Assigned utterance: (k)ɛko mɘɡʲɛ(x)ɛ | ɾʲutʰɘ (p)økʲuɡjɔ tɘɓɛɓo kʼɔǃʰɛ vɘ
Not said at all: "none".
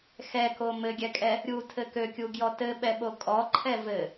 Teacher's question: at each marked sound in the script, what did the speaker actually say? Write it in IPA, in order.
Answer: x, kʼ, k

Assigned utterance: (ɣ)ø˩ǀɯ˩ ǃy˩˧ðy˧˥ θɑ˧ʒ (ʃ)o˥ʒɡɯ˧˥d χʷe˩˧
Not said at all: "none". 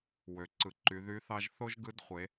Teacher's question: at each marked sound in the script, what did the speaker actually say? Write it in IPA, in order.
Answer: w, θ

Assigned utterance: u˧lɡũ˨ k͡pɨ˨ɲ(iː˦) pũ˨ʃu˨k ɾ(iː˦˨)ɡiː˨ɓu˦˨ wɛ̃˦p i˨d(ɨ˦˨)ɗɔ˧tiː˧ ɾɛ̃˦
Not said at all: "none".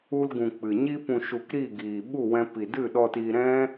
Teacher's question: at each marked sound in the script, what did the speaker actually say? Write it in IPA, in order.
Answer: i˦, iː˦˨, ɨ˦˨

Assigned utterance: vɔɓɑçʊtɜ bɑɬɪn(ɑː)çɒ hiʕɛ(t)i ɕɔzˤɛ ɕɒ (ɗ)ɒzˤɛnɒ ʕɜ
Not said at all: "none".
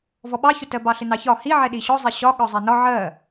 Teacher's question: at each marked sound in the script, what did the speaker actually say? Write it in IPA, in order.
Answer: ɑ, ɗ, ɠ

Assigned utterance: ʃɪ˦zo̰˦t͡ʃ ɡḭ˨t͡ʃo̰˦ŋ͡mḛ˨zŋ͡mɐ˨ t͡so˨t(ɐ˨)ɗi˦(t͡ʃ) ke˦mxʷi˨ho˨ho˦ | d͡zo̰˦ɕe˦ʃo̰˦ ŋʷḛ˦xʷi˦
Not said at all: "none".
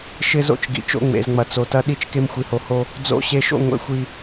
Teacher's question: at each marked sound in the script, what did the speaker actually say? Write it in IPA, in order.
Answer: ɐ˦, t͡ʃ

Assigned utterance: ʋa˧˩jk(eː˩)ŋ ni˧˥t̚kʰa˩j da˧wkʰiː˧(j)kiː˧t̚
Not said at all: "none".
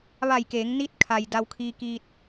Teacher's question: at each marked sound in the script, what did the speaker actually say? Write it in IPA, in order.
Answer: eː˩˧, none

